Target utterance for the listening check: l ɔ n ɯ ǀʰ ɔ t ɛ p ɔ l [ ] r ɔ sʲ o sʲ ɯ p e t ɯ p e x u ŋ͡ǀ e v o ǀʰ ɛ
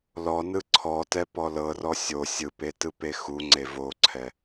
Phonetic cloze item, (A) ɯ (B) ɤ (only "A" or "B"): B